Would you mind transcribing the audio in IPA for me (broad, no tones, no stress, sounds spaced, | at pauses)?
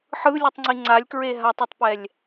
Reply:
ħ ɯ lʲ ɯ tˤ ŋ͡ǀ i ŋ͡ǀ a lʲ k ɹ e ɦ a tˤ ɯ tˤ p ɛ lʲ